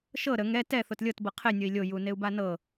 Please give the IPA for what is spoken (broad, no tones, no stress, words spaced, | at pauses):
ʃɤ ɾə ŋɛ tɛ θotlʲɤt bɤqʰe nʲɤi̯lʲo juneu̯banɤ